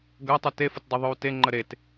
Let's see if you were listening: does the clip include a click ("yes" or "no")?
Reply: yes